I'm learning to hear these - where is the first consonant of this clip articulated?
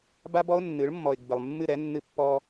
lips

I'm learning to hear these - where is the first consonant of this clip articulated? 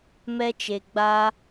lips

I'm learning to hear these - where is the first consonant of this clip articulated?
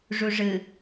retroflex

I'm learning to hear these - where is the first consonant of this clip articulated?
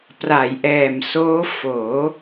lips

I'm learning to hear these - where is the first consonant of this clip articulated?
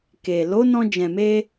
velum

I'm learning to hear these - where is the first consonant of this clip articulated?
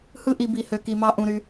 throat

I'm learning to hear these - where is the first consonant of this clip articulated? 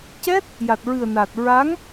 palate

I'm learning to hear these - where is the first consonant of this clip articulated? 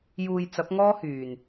palate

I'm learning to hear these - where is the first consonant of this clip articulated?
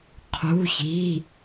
uvula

